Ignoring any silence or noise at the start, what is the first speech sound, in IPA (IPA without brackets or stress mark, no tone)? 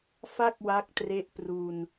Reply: f